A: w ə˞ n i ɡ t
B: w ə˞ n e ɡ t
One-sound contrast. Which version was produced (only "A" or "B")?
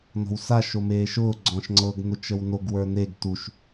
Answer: B